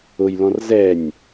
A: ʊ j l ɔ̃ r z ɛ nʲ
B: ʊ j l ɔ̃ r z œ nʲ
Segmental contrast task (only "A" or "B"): A